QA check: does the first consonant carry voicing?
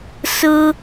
no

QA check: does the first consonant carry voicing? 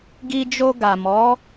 yes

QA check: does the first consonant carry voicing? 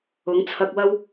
yes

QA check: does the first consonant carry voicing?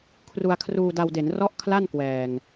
no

